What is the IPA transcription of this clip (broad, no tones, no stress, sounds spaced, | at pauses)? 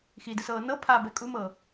x i d ɯ s ɤː n ɤ pʰ a b ɛ kʼ u m ɤ